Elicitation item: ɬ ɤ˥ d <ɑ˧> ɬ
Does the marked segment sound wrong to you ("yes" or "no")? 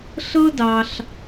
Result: no